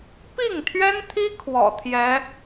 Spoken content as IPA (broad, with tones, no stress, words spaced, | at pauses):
pi˥˩ŋt̪ʰɥɛ˥nt̪ʰi˥ kʰwɔ̰˨˩t̪ʰjɛ˧˥